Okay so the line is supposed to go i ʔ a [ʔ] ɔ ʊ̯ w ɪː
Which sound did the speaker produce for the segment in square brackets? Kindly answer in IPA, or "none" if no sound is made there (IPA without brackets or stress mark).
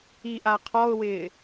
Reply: qʰ